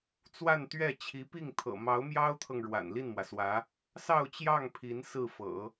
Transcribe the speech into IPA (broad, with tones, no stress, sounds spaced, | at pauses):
t͡s w a˥˧ n t̪ ɥ ɛ˥˩ t͡ɕʰ i˧˥ p i˥˩ ŋ t̪ʰ ɤ̰˨˩ m ɑ˧˥ ʊ̯ m j ɑ˥ ʊ̯ t̪ʰ ɤ˨ ŋ ɻ w a̰˨˩ n l i˥˩ n m w ä˩ s w ä˧˥ | s ɑ˥˧ ʊ̯ t͡ɕ j ɑ˥˩ ŋ pʰ i˧˥ n s ɹ̩˥˩ f ɤ̰˨˩˦